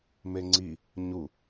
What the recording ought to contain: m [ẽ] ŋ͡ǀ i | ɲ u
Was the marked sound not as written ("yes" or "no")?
yes